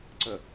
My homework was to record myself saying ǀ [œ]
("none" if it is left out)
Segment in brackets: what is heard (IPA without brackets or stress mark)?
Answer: ə